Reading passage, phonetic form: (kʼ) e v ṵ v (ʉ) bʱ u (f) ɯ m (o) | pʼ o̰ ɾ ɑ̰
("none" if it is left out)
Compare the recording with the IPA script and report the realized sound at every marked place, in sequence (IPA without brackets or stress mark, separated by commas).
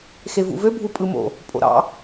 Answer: x, ø, pʼ, o̰